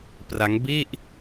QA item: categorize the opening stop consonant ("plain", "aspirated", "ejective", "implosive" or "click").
plain